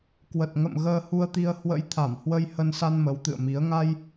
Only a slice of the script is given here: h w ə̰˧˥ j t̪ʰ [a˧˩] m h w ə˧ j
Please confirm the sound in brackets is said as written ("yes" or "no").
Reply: yes